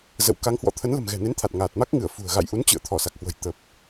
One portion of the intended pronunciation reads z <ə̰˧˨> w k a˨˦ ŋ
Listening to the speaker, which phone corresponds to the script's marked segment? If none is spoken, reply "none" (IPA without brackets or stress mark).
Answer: ə̰˧˨